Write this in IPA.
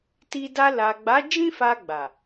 ti˧ da˧la˨ɡ͡ba˨˦ d͡ʒĩ˦fa˧ ɡ͡ba˨

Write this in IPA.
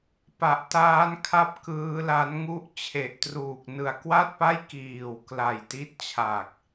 pa˨˩ʔtaː˦˥nkʰa˦˥p̚ kɯː˦˥la˦˥n ŋu˦˥ʔ t͡ɕʰe˨˩ʔtruː˨˩k̚ nɯ˨˩a̯kwa˥˩t̚pa˥˩j kiː˨˩w kla˨˩jti˦˥t̚ t͡ɕʰa˨˩k̚

